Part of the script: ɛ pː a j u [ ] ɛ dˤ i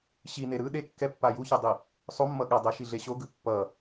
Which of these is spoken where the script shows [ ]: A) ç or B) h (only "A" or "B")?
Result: A